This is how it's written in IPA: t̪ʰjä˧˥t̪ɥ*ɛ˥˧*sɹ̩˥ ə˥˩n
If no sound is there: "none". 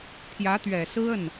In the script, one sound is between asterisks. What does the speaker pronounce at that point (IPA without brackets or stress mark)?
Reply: ɛ˨˩